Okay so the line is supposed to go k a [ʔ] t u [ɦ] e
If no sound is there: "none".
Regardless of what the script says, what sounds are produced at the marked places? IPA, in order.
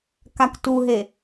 k, ɦ

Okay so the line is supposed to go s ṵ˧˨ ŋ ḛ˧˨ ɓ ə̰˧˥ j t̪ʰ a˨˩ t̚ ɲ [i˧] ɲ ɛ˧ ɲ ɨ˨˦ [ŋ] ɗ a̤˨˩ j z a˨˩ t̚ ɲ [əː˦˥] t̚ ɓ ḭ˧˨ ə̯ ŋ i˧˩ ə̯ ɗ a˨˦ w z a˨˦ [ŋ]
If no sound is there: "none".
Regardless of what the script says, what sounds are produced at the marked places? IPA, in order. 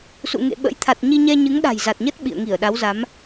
i˧, ŋ, ə˦˥, m

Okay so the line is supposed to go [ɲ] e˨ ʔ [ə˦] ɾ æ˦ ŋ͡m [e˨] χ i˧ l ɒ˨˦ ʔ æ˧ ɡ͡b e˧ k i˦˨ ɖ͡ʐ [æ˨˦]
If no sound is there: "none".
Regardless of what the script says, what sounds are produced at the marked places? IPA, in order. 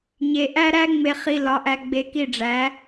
ɲ, æ˦, e˧, æ˨˦

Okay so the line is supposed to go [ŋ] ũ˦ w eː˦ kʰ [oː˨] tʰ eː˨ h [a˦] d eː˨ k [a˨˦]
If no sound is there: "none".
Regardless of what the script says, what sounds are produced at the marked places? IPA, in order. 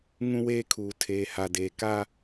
ŋ, uː˨, a˨, a˦

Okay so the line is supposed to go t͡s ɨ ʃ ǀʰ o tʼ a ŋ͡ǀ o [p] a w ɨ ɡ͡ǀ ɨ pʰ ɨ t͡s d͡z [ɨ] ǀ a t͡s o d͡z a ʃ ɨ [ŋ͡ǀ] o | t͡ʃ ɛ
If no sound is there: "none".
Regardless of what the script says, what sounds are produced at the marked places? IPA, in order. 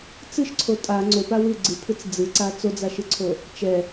p, ɨ, ǀʰ

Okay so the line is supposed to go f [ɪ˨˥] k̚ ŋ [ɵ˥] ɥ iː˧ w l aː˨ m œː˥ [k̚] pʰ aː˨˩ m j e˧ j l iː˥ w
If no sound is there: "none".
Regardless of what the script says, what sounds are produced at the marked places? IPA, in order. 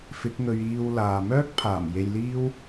ɪ˨˥, ɵ˧, k̚

